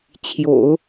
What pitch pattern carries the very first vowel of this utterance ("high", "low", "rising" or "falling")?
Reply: low